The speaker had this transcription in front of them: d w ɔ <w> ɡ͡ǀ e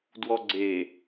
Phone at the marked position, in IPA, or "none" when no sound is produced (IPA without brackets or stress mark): none